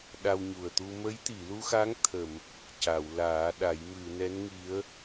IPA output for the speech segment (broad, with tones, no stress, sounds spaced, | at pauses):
ɗ a˧ w ɲ u˨˩ ə̯ t̪ u˧ m ə˧˥ j t̪ i˨˩˨ l u˧ x a˧˥ ŋ t̪ʰ ə˨˩˨ m | c a˨˩˨ w l aː˨˩˦ ɗ a˨˩˦ j m ɨ˨˩˨ n ɛ˧˥ n ŋ i˧˥ ə̯